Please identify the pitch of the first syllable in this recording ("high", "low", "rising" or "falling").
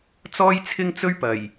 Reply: high